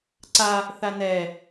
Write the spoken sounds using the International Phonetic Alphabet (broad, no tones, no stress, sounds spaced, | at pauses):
ǀ a | θ a n ɛ